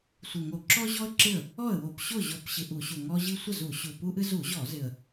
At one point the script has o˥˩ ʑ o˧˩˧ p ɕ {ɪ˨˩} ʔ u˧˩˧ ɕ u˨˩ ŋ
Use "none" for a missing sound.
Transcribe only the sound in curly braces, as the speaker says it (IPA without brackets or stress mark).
ɨ˨˩